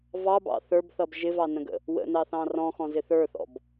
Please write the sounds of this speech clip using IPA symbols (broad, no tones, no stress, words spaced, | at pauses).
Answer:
vɑbɑ̰ θə˞bθʌb ʒɪvɑnə̃ɡə̰ | wə̰nɑθɑ̃ rɔ̃xɔ̃zɪ θə˞θɔ̰b